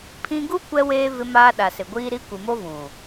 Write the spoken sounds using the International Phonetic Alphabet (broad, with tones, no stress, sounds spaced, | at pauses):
pʰ ĩ˦ ɡ u˦ kʷ ɛ˦ w eː˦ v ɪ˦ m aː˦ ɗ a˨ s ɪ˨ ɡʷ iː˦ ɾ i˦ kʷ i˨ m o˦ v ũ˨